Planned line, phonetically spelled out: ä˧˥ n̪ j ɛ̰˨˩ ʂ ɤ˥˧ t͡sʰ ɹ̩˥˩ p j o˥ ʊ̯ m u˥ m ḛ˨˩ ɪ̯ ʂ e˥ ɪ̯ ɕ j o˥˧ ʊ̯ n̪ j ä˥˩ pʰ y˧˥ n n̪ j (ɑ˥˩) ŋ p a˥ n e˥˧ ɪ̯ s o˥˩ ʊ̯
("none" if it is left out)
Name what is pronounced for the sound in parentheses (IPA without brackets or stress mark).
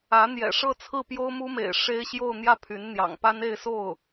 ɑ̰˨˩